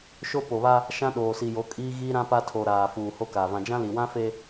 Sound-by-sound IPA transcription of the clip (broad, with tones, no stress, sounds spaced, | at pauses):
ʃ o˦ p o˨ β a˦ | ʃ ã˦ ɗ oː˨ s i˨ j o˨˦ kʼ iː˦ ɣ iː˦ ɾ ã˦ p a˦ tʰ o˨ ɾ aː˨ f uː˨ h o˦ k aː˨ v ã˨ d͡ʒ ã˦ l i˨ w ã˦ f e˦